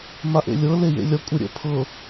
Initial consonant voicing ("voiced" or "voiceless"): voiced